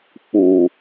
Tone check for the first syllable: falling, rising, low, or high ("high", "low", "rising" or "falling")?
low